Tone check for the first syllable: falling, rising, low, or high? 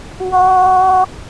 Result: high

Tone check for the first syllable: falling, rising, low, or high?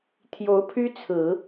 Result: rising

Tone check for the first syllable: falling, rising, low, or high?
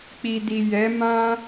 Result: low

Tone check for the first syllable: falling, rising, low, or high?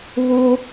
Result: high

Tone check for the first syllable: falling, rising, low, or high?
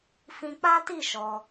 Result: high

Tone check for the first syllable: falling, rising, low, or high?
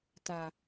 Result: low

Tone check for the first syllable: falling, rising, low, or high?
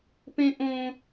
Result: high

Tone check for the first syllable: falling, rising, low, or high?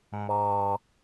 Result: low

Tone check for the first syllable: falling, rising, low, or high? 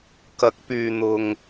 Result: rising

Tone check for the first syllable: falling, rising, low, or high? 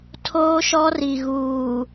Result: high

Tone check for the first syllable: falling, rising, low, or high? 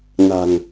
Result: low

